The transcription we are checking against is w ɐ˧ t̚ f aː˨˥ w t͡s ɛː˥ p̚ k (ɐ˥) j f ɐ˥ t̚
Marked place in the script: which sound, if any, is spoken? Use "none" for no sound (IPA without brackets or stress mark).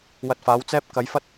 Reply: ɐ˨˧